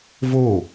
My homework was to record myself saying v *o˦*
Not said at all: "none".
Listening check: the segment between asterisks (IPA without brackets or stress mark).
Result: o˦˨